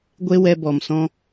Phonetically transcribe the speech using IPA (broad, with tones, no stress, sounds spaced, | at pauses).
ɡʷ e˦ w ɛ˧ b ɔ˨ m s ɔ̃˦